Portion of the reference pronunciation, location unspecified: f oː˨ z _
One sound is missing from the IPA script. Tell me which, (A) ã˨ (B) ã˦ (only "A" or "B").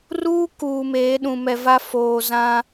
B